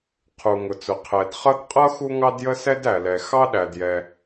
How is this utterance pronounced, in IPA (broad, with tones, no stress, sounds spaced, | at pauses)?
qʰ u˩ ŋ ʊ˩ t͡s ʊ˩ qʰ ɛ˩ d χ ʌ˥ d qʼ ʌ˥ x u˥ ŋ ɑ˥ d j ə˥ s ɛ˥ d æ˩ l ɛ˩ x ɑ˥ ɗ æ˩ d j ɛ˩